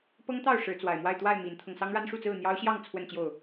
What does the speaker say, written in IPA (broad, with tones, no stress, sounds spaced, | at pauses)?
p ɤ˦ ŋ t̪ ɑ˥˨ ʊ̯ ʂ ɻ̩˨˦ t͡s w a˨˩ ɪ̯ m w a˥˨ ɪ̯ t̪ w a˥˨ ɪ̯ m i˨˦ n t̪ʰ ɤ˧ ŋ s ɑ˦ ŋ ɻ a˦ n ʂ u˥˨ t͡s ɹ̩˥˨ n̪ j ɑ˦ ʊ̯ ɕ j ɑ˥˨ ŋ t͡sʰ w ə˥˨ n t͡ɕ j o˥˨ ʊ̯